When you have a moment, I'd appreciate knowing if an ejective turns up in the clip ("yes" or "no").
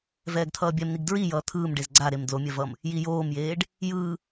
no